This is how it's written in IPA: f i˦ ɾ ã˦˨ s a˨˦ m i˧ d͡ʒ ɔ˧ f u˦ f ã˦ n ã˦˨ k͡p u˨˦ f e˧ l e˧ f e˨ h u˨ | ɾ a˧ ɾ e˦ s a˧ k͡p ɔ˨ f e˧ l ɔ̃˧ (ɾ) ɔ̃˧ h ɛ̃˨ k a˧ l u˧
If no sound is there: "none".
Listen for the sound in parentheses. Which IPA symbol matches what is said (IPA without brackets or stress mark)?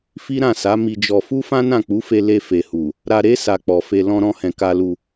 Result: ɾ